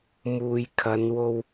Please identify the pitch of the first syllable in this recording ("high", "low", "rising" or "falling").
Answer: low